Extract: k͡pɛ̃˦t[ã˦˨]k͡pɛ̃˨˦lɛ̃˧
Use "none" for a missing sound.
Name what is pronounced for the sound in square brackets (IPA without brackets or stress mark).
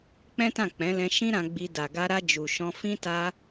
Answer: ã˦˨